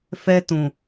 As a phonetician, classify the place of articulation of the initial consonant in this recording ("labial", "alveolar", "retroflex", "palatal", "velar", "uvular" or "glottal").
labial